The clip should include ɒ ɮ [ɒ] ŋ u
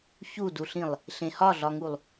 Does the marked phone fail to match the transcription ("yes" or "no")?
no